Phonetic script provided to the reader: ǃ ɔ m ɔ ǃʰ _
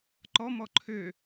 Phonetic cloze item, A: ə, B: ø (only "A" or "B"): B